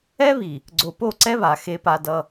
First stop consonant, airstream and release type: click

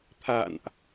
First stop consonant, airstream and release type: aspirated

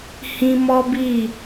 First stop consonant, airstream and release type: plain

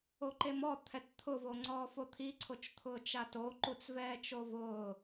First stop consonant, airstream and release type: click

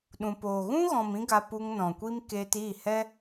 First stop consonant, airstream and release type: implosive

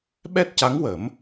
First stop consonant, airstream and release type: implosive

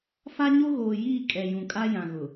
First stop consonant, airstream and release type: ejective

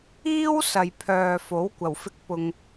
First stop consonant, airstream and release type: aspirated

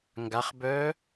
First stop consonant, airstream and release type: plain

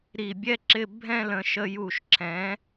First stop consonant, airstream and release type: plain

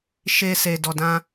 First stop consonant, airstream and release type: plain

